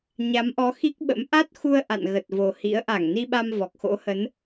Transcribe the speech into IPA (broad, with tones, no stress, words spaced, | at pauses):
ɲa˨˦mʔɔ˨˦xi˦˥k̚ɓə̰˧˥m ʔa˦˥t̚xu˧ə̯ ʔa̰˧˨nɣə˨˩t̚vo˨˩hḭ˧˥ə̯ ʔa˧˩ŋni˧ɓa˧m vɔ˨˩k̚xo̰˧˥hə˨˦n